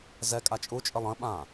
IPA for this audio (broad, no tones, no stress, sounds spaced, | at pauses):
z ɛ kʼ a t͡ʃʼ u t͡ʃʼ ə lˠ ə̃ ɓ ã